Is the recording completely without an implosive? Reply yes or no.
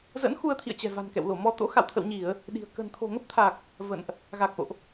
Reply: no